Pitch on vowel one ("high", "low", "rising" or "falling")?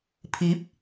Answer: rising